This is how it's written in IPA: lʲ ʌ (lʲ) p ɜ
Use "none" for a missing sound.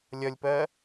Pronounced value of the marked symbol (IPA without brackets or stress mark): lʲ